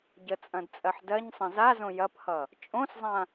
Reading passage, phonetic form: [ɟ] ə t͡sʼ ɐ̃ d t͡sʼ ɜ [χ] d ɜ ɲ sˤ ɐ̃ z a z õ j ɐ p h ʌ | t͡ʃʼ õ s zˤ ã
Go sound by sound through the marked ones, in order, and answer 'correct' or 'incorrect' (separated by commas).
correct, incorrect